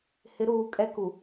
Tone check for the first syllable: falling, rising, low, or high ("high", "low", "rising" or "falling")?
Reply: rising